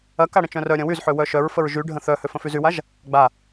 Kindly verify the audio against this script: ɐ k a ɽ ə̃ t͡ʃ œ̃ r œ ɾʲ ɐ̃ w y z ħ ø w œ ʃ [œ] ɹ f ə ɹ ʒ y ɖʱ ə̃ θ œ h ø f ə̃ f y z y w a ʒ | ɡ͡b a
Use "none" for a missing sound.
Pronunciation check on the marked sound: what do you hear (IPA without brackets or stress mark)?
œ